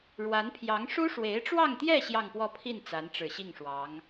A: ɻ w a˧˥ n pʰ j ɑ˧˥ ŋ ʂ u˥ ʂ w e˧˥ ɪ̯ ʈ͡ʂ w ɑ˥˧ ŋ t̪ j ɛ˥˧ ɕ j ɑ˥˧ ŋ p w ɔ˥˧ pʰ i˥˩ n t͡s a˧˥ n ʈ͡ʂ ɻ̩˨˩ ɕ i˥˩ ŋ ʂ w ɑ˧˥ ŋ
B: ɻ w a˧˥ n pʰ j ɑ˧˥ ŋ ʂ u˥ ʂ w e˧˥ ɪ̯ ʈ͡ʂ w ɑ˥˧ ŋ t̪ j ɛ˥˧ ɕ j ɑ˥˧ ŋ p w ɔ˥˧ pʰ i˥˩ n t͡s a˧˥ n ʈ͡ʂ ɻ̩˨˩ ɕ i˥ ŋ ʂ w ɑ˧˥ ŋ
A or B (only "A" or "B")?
A